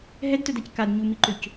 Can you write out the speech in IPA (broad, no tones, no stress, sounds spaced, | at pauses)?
ɦ ɛ d t œ d a c k a d ɲ u m i ǃ ø c